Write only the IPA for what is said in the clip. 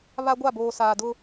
βa˦ ɡʷa˦˨boː˨ saː˨dʊ˦

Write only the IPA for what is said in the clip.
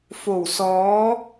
fo˨˩wsɔː˨˥

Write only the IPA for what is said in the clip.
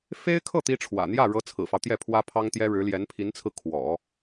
fe˥ɪ̯kʰɤ˥˩ t̪i˥ʈ͡ʂʰwä̰˨˩ n̪jä˥˩ɻɤ˧˥ t͡sʰɹ̩˨˩fɑ˦ʊ̯t̪jɛ˥˩ pʰwä˥pʰɑ˥ŋt̪jɛ˥ ɻɻ̩˧˥ljɛ˧˥npʰi˧˥nt͡sʰɹ̩˧ kʰwɔ̰˨˩˦

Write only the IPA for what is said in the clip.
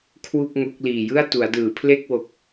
kʰwu˥˩k̚ŋo˦˥k̚ liː˨˩jɯ˥˩a̯ tu˩˦a̯dɯː˩˦pʰle˥˩k̚wo˨˩k̚

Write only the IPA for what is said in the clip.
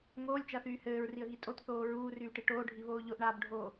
ŋoːlʲt͡ʃaθyː hɘːɹriə̯ɣi tʼotθoː ɹuːryːʈi ʈoːɖʱiβoː ʎoʔɳaːbɖʱoː

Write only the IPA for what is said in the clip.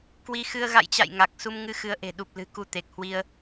kwi˧xɨ˧ə̯ ɣa̰˧˨jt͡ɕa̰˧˨j ŋa˨˩k̚ su˧m ŋɨ˧xɨ˨˦ə̯ʔe̤˨˩ ɗu˨˩p̚lɨ̤˨˩ ku˧t̪e˨˩k̚hwi˧ə̯

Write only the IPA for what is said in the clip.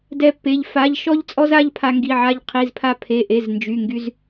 dɛ˥pːe˧˥˧ʎ fa˧˥˧ʎ ʃɔ˥ʎt͡sʼɔ˥za˧˥˧ʎ pʰa˥ŋɡi˧˥˧ʕa˥ʎ qʰi˧˥˧zpʰa˥pʰe˧˥˧ʔe˧˥˧z nd͡ʒy˧˥˧ŋɡy˥z

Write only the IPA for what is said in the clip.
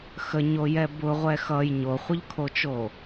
xəɲojɛ bʊʁʷɛ xʌj ɲoχʷəʎkʰot͡ʃo

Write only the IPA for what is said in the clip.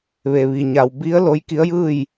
ʋe˩ʋi˩ ɲa˩wbi˧˥ə̯ lo˧˥jki˧˥ə̯jɯː˥˨j

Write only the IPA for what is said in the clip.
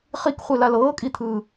χikχʷelal ɤːkʼit̪ʰɯː

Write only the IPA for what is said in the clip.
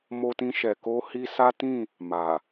mo˧tĩ˧ʃɛ˨ ko˧ hi˦ sa˦tĩ˦˨ | ma˨

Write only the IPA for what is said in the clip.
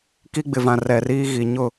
ki˦ɡ͡bɪ˨vã˨ rɛ˨ riː˦ɣi˨ ɲʊ˦˨

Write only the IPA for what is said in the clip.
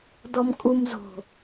dɔmkʼum zo̤

